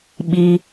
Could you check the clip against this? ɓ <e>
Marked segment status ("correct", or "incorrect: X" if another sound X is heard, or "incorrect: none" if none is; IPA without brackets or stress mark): incorrect: i